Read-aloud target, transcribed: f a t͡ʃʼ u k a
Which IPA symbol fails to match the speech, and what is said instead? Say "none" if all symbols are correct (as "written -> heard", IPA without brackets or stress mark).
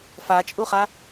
k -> χ